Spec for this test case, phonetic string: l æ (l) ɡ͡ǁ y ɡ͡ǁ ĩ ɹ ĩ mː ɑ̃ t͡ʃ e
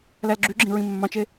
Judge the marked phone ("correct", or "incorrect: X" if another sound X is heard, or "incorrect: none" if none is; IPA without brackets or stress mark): correct